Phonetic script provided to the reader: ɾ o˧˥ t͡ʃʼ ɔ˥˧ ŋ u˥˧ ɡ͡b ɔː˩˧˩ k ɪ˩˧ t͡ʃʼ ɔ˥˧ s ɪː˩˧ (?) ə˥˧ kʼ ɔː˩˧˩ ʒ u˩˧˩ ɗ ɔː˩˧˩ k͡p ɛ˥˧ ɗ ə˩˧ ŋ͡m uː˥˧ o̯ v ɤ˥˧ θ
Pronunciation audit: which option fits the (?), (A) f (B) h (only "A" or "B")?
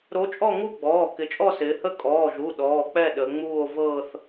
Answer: B